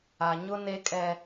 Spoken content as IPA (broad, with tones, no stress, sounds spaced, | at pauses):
a˨ ɲ ʊ˦ n e˦ kʼ ɛ˦